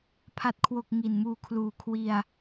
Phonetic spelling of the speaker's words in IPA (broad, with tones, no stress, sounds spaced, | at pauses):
pʰ a˨˩ t̚ kʰ w o˨˩ k̚ ŋ i˨˩ n m uː˧ kʰ l uː˨˩ kʰ w i˧ a̯